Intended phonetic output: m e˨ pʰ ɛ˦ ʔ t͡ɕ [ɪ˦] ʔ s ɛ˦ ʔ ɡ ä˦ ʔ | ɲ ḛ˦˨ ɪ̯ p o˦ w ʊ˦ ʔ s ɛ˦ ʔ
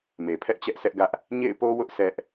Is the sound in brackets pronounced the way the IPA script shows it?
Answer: no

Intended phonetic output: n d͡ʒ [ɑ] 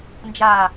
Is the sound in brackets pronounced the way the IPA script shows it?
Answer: no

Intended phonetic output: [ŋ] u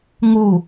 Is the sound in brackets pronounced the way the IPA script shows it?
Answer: yes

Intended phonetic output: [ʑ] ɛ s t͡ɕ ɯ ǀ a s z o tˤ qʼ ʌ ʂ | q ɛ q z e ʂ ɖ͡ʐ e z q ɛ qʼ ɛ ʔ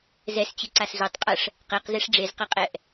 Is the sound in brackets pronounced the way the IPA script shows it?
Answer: no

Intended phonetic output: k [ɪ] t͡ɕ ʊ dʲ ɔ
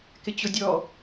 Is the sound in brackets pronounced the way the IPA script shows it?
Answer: yes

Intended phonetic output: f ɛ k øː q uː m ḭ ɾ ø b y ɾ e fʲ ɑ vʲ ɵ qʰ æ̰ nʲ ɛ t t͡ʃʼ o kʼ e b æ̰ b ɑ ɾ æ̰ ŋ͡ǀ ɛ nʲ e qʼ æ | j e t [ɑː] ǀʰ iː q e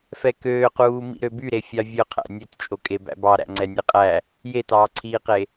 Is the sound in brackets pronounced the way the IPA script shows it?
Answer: yes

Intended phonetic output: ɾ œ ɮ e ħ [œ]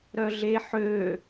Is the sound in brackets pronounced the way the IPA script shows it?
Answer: no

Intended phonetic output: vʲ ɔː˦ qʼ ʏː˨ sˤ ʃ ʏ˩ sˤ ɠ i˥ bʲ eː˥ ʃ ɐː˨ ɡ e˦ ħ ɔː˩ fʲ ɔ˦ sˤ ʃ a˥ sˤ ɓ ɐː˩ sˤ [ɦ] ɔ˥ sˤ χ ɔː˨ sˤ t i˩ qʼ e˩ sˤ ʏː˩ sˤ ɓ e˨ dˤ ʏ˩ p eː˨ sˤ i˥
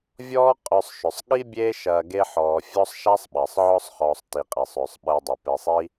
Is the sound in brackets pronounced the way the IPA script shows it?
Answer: no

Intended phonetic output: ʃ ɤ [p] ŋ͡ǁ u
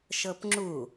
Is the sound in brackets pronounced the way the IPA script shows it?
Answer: yes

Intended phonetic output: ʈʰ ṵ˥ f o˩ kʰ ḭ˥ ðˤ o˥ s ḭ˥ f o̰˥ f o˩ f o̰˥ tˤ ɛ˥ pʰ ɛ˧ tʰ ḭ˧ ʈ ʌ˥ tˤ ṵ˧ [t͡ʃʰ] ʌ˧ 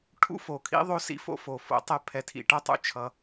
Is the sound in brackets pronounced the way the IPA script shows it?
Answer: yes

